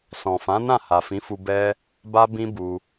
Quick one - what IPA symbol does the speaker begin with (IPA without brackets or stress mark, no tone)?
s